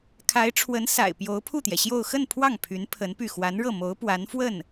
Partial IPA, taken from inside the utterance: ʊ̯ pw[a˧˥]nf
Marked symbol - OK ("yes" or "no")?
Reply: yes